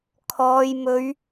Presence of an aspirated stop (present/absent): present